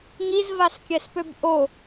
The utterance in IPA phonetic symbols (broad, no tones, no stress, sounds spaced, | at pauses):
ŋ i z v a s kʲ ɛ s p ø b ʔ o